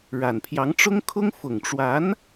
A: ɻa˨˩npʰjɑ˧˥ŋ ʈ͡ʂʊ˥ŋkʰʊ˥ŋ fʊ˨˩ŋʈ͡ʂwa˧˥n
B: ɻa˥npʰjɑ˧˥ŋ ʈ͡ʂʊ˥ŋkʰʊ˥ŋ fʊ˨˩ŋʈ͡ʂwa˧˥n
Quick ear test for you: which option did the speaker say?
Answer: A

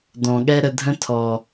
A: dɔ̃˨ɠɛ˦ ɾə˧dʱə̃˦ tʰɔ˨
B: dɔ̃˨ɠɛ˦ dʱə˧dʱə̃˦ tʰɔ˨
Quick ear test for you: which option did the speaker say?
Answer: A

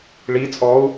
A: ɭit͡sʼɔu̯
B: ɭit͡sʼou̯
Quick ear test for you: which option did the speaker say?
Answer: A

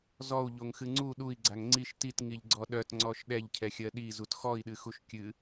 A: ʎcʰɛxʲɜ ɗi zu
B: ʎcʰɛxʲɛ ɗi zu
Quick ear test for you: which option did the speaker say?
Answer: A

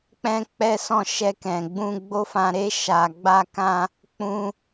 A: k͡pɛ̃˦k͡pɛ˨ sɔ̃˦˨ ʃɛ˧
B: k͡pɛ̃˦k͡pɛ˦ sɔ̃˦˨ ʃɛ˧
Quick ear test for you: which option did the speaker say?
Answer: B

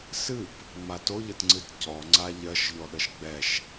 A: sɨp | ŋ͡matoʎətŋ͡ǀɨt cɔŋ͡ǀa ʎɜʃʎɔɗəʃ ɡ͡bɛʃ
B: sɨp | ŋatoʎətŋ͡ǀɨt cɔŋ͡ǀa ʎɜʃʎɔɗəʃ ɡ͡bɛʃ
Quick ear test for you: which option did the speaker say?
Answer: A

